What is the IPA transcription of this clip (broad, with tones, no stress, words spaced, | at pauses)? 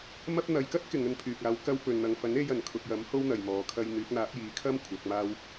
mɐ˧p̚ n̪ɐ˨jkɐ˥t̚ kɪ˨˧ŋɵ˧npʰyː˨k̚aː˨˥w kɐ˧wpɵ˨n n̪ɐ˨ŋfɐ˨˥ne˧jɐ˨˩n kʰʊ˨k̚jɐ˨˥m ho˥wn̪ɐ˨jmɔː˨˧ kʰɐ˧jn̪yː˨˥k̚n̪aː˨˥p̚ jiː˨˥kʰɐ˥m kʷʰɐ˨˥k̚maː˥w